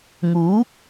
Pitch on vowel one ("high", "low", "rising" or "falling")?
rising